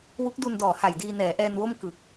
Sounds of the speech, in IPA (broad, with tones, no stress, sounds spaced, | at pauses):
w u˦˥ k̚ d u˧ n d ɔː˨˩ h a˨˩ j d iː˧ n ɛː˩˦ ʔ ɛː˧ n w o˥˩ m k ɯ˨˩ k̚